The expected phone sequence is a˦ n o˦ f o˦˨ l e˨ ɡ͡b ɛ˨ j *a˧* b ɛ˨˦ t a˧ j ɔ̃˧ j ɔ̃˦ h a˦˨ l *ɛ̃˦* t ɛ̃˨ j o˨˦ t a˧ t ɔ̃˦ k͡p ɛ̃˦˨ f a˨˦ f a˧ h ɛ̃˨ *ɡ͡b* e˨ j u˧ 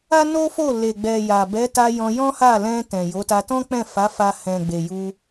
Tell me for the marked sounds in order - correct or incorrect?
incorrect, incorrect, correct

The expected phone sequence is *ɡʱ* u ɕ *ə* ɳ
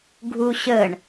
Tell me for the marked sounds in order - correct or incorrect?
correct, correct

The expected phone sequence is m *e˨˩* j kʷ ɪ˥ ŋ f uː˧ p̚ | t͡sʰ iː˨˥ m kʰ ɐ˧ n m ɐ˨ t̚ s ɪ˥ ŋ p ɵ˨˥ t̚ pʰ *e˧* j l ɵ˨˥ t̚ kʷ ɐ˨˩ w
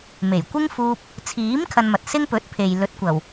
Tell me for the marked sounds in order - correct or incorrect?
correct, incorrect

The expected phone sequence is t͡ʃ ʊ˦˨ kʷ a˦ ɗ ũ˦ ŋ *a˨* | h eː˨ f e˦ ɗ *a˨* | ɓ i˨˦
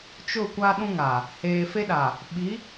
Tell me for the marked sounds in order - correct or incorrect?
correct, correct

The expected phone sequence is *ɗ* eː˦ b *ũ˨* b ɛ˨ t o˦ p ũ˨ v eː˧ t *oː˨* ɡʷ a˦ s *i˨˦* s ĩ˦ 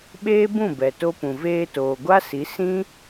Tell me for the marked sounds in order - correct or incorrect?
incorrect, incorrect, correct, correct

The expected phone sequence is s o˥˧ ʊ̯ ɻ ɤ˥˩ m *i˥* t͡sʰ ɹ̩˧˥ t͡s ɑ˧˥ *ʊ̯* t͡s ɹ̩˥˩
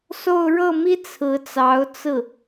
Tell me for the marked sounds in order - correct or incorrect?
correct, correct

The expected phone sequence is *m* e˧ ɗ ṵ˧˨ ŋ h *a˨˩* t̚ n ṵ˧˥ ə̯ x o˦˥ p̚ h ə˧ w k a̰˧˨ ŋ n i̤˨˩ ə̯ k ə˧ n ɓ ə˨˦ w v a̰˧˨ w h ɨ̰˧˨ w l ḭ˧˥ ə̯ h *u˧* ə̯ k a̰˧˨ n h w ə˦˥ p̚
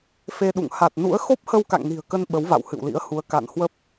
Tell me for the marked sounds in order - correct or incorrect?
incorrect, correct, incorrect

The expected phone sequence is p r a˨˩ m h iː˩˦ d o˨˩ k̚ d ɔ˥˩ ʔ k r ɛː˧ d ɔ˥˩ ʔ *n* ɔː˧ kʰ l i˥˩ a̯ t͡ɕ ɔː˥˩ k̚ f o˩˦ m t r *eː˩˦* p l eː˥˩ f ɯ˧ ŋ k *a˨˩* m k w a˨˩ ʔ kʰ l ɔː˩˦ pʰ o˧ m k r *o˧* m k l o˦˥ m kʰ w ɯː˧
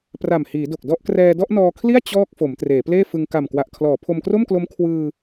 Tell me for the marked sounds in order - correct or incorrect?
correct, correct, correct, incorrect

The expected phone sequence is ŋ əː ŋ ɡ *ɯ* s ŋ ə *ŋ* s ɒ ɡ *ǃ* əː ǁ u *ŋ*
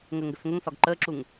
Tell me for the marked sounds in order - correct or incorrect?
incorrect, correct, correct, correct

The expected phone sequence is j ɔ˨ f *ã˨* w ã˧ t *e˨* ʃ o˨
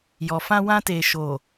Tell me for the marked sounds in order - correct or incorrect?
incorrect, correct

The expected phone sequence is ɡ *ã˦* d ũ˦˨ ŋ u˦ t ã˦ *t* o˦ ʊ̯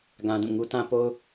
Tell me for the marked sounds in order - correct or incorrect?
correct, incorrect

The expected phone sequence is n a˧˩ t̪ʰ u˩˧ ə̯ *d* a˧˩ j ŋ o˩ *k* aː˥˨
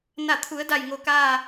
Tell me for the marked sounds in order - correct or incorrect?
correct, correct

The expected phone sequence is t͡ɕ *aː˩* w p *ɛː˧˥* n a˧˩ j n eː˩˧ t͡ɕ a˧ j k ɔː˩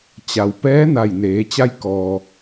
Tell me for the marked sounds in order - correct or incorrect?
incorrect, correct

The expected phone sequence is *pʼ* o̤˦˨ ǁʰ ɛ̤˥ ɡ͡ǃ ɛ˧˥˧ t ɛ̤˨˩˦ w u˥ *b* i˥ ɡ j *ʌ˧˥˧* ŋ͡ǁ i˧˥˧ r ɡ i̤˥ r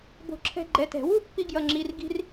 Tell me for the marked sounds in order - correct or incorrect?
incorrect, incorrect, correct

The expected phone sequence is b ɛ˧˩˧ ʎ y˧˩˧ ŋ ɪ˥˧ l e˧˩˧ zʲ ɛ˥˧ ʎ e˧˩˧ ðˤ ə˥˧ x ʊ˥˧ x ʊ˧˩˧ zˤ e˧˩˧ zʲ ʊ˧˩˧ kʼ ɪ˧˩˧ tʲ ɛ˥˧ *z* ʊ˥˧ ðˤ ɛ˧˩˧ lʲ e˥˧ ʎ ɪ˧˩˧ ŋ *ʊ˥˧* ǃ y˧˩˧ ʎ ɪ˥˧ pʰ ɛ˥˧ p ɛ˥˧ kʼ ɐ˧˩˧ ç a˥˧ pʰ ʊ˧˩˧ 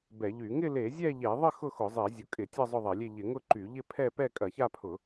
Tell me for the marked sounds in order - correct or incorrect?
incorrect, correct

